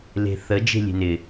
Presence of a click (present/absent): absent